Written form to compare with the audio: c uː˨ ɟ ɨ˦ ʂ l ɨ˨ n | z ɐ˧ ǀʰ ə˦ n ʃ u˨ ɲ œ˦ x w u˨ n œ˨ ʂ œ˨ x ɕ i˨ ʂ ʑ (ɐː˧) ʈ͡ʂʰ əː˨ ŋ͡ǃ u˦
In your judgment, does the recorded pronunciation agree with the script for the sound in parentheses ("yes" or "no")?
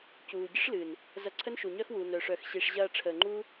yes